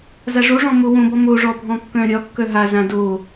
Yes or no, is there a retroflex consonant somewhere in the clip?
yes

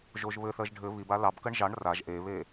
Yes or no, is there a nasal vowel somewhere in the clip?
no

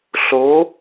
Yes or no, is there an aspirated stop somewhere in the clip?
no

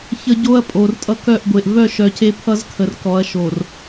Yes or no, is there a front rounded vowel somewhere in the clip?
yes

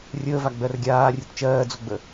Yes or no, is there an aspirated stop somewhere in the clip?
no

